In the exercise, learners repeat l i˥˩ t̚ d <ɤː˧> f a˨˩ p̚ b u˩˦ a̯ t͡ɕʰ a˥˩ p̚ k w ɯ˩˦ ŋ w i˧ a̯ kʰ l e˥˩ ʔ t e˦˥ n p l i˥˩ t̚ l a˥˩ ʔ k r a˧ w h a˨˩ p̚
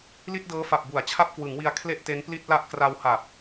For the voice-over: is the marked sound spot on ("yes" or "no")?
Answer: no